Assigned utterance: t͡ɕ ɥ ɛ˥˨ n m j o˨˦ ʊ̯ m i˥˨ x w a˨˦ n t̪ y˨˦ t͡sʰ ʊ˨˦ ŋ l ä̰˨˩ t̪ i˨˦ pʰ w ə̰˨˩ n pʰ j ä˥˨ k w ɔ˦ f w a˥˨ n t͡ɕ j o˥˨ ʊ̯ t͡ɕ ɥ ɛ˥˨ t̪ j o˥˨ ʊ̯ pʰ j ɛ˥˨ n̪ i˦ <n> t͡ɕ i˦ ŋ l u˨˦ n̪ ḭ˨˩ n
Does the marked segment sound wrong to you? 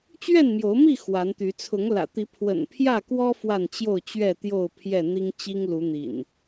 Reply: yes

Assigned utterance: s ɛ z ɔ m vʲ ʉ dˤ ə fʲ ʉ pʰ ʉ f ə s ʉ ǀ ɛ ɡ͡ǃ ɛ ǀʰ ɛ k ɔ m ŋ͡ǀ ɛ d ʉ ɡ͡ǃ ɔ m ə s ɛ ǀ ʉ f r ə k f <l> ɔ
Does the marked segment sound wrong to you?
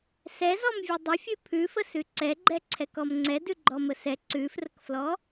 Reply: no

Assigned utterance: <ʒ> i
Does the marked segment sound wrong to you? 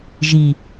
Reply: no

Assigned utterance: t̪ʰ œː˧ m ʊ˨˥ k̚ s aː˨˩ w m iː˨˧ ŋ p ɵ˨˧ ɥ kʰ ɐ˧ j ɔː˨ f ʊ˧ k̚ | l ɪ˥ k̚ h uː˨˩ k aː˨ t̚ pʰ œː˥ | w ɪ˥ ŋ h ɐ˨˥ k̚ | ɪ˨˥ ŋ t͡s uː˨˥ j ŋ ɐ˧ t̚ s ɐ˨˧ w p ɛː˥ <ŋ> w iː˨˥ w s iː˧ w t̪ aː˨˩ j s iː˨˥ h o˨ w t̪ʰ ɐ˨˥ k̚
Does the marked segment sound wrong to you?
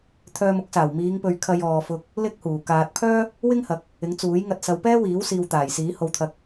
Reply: yes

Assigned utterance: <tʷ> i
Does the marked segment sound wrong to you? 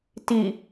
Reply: yes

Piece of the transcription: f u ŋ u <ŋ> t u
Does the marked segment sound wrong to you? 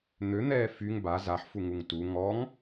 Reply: no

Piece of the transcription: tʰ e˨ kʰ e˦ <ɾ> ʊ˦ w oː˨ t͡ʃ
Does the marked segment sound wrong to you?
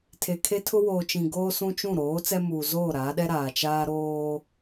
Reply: yes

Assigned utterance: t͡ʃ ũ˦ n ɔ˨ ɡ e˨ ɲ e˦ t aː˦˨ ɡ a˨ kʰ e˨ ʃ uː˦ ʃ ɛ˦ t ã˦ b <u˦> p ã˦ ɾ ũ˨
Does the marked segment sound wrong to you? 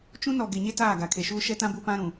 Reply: no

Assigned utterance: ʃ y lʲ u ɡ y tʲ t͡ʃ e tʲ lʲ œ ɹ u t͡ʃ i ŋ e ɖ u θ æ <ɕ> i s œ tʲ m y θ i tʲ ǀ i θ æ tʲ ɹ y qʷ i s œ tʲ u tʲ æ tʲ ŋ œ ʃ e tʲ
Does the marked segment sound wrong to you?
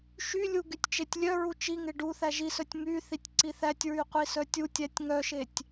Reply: yes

